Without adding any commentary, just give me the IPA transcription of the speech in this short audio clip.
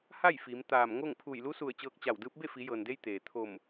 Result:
ha˥˨j fiː˩˧mt̪aː˧˩m ŋo˥˨ŋ pʰu˧˩jlu˧˥su˧˩ə̯ t͡ɕɤː˧k̚t͡ɕa˧˩wdɯː˧˥p̚ be˥˨fi˩˧jɤː˩nde˧j t̪eː˩ t̪ʰo˧˩m

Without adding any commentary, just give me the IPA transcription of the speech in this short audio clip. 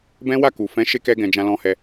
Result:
bɛ̃˦wa˦˨ku˨ fɛ̃˨˦ ʃe˧kɛ˧ɡɛ̃˨ d͡ʒã˧lɔ̃˧hɛ˧

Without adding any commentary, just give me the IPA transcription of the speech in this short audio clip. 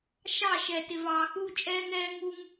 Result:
ʃɑ˦˨ʃɛ˨ tɪ˨vɑː˨xuː˦ t͡ʃʼɛː˦ŋɛː˦ ŋu˦ŋ

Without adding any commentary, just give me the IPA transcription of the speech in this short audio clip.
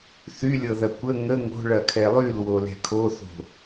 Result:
θylʲɤðɐ kʷə ŋə ŋo̤ɭɐkʰɛ lˠylwolɛ̤ kʰoθo̤

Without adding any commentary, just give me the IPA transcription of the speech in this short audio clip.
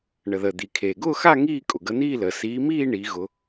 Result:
ɳə˩ðəː˩d̪i˩kʰeː˩ ɡʊː˥˧xa˥˧ ŋiː˥˧ kʼʊ˩ɡə˨˦n̪iː˥˧ləː˩ siː˨˦miː˥˧ ɳi˨˦ɣʊ˨˦

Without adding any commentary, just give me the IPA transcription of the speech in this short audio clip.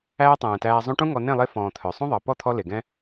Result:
æː˦tˤɛ̃ː˨tæː˧ zˤũ˧ʈũ˦ ŋɔ˧ nẽ˦˨lˠe˧ fɔ̃ː˨ t̪ʰœ˨ sˤũ˦ðˤɑ˨ pɔ˦˨t̪ʰɔ˧ le˨ɡɛ̃˦

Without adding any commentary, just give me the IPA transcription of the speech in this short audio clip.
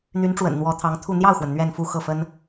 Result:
n̪y˧˥nʈ͡ʂwə̰˨˩n n̪wɔ˧˥t̪ʰɑ˧˥ŋ t̪ʰu˥˧ n̪jɑ˥˩ʊ̯xwə˩n n̪ɥɛ˥˧nfu˥˧ xɤ˥˩fə˥n

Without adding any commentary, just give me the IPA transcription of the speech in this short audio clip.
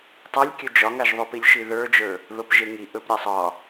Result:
tˤalʲkʲɵ d͡ʒɒŋaʒðˤopilʲ ʃiðə˞d͡ʒə˞ | ðopʒeŋi ʔɵpɾʲasˤ ɒ

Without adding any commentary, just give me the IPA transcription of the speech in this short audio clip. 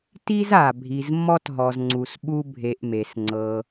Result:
ti˥za˩ bʱi˨zmːɔ˥tɦɔ˨zŋ͡ǀu˨s ɓu˦bʱe˨ʔme˩s ŋ͡ǀɤ˨

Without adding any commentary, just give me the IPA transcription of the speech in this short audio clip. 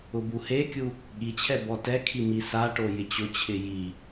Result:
ʊbuhekʲu | ɠit͡ɕʰɛ bɔtɛkʰi misaʈo jɪt͡ɕʊt͡ɕʰɪ ji

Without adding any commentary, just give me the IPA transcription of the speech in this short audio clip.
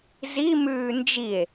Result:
zi mʉːnd͡ʒie̯

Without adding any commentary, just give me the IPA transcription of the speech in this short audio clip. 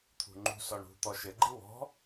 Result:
t̪ʰṳŋ͡ǃṳsɔɳ ṳ t̪ɔʃɘɡ͡ǃi wɔ̤

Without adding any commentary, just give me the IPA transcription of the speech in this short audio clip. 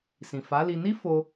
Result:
sĩ˨fa˨˦li˧ ni˦fo˧

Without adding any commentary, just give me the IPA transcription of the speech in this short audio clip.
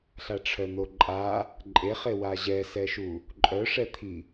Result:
ɬaʈ͡ʂʰœn̪oǃʼa | ǃʼeχe waʑɛsɛʃu | ǃʼœʂɛt̪ʰi

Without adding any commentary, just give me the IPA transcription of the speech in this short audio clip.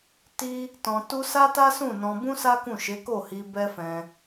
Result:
ti˦ | tɔ̃˧tu˦ sa˦ta˦sũ˦˨nɔ̃˧ bũ˦sa˦kũ˦˨ ʃe˨˦ko˦˨hi˧ bɛ˦fɛ̃˧

